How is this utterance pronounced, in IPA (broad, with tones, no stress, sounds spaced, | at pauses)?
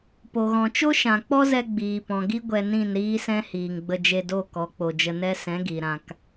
p o˨ ɣ ɔ̃˨ t͡ʃ o˦ ʃ ã˨ k͡p ɔ˦ z ɛ˧ ɡ͡b iː˨ p ɔ̃˨ ɡ i˦ ɡʷ ɛ˧ n ĩ˦˨ n ɾ iː˦ s ɛ̃˦ h iː˨ ŋ ɡ͡b ə˧ d͡ʒ e˧ d o˦˨ k ɔ˨˦ k͡p o˨ d͡ʒ ə˧ n ɛ˦ s ɛ̃˨˦ ɡ i˨ ɾ ã˧ k